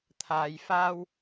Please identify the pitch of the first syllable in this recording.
low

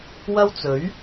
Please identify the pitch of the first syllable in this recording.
high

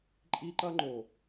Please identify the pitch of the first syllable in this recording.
high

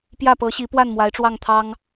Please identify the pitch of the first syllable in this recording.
falling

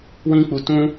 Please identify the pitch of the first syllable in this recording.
high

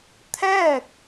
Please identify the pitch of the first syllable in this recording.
falling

